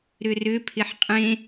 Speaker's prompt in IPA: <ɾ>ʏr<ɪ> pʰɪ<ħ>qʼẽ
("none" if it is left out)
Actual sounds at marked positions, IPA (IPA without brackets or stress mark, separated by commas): ɾ, ʏ, ħ